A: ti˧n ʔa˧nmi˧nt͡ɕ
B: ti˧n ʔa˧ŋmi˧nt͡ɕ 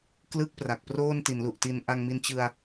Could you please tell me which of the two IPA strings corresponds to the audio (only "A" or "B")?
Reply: B